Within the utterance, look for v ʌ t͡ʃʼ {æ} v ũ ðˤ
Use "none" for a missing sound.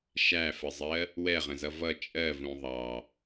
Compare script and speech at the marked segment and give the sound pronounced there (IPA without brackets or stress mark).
ɜ